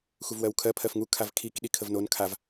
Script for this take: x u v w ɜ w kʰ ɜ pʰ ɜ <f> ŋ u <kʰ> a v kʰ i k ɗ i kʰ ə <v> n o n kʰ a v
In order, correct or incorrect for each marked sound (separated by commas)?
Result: correct, correct, correct